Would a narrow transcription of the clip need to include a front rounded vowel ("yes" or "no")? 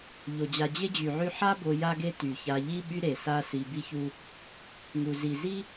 yes